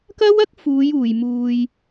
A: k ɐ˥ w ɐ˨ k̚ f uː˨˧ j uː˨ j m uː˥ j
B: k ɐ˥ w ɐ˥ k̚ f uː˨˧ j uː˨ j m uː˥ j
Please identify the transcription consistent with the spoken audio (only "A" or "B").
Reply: B